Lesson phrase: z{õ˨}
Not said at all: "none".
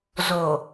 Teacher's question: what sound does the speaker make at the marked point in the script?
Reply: o˨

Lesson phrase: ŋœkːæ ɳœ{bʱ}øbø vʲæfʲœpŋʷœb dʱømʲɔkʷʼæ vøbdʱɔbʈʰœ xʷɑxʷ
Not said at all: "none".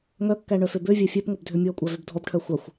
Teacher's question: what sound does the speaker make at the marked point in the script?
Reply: f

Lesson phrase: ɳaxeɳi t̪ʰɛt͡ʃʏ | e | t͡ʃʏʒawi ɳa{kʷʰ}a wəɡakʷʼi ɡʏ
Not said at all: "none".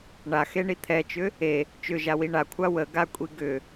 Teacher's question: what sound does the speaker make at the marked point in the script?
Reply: kʷʰ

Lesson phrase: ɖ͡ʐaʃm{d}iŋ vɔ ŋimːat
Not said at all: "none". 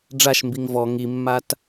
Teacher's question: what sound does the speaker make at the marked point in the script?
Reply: b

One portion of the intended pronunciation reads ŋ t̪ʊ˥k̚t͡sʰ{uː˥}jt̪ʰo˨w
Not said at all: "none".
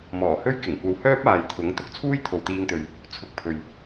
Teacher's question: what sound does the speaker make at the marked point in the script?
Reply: uː˥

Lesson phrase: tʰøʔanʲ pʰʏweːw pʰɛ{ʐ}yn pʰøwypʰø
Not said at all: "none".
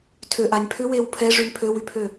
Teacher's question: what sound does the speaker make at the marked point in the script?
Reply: ʐ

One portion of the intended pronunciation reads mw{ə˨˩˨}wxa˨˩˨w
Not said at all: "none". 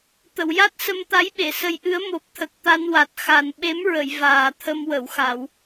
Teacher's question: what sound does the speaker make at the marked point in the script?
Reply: ə˨˩˨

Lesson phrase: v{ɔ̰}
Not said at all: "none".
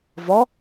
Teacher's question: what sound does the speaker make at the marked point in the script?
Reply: ɔ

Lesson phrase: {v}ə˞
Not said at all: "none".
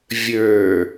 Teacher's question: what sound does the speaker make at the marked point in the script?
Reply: vʲ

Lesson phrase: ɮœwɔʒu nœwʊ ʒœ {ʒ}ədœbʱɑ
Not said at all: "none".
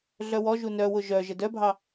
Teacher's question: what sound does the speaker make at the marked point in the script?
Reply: ʒ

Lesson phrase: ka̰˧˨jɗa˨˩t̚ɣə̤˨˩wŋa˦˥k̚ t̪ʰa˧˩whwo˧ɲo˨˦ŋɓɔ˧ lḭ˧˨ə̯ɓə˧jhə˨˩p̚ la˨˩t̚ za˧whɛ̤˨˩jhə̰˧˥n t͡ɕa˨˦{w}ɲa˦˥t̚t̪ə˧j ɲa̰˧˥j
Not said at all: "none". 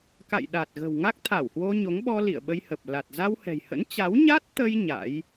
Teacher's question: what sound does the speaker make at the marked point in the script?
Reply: w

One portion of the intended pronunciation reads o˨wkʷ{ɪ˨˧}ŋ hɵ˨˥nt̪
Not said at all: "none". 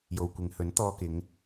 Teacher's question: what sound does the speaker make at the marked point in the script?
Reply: ɪ˨˧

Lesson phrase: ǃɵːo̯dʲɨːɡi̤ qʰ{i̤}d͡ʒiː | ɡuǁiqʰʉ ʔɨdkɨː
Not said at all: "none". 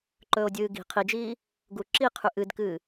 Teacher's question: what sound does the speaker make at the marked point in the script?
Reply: i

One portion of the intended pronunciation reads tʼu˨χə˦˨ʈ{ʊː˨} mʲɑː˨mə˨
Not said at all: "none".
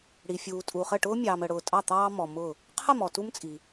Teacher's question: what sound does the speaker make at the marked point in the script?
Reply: ʊː˥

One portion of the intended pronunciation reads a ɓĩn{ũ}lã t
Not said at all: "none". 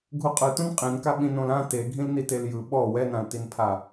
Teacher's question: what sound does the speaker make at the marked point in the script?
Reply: õ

